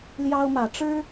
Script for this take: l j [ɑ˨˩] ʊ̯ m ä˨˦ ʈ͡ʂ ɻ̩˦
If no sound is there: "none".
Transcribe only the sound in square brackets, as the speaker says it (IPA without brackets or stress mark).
ɑ˦